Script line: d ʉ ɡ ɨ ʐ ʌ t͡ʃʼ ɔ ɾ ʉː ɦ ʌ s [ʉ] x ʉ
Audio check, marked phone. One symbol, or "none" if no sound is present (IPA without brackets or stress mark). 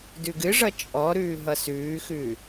ʉː